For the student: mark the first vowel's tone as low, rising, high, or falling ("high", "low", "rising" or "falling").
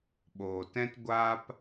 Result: low